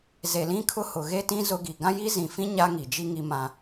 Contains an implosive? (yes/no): no